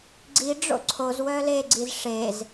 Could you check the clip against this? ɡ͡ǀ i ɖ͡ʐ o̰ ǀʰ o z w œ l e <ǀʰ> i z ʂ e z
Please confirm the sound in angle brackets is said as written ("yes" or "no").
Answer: no